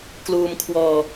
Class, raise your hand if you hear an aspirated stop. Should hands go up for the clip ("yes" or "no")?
yes